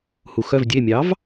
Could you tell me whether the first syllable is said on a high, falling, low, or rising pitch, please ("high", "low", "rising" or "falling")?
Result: low